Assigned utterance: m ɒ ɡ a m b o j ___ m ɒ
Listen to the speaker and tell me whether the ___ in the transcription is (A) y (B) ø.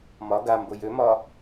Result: B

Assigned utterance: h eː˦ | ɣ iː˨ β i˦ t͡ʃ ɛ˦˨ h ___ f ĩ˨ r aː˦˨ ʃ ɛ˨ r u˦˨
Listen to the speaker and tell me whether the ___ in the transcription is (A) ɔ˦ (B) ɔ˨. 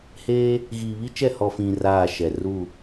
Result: B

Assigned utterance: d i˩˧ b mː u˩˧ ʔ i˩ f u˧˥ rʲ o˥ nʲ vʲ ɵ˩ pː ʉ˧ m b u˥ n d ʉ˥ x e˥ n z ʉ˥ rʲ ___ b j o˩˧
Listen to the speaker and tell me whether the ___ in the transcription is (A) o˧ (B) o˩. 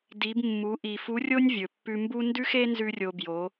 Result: A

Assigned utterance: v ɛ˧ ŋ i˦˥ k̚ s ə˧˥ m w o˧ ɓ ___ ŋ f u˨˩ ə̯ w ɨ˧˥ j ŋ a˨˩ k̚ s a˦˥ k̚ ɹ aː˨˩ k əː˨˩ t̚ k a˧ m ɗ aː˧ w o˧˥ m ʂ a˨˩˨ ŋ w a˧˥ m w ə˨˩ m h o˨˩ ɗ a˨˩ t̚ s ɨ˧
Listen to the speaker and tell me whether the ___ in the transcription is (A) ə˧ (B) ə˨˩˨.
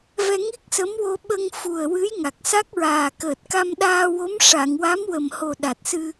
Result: A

